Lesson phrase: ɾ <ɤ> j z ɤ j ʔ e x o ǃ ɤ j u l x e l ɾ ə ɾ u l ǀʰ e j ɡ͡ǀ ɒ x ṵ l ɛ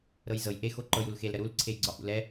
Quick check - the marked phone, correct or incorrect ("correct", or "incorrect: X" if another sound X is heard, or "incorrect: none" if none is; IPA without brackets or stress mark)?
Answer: correct